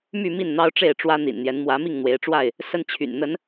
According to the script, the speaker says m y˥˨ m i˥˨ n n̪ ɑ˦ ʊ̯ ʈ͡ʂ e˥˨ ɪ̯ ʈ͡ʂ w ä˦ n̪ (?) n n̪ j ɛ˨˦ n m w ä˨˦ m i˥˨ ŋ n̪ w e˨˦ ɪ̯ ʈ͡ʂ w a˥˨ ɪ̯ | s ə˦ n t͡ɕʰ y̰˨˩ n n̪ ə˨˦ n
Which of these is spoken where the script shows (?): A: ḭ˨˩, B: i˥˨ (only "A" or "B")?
A